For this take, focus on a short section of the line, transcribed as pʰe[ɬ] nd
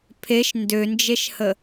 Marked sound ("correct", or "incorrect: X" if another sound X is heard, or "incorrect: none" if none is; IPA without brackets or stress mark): incorrect: ʃ